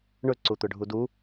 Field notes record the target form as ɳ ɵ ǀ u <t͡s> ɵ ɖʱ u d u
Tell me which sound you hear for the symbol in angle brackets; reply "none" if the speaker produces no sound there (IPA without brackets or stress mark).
t̪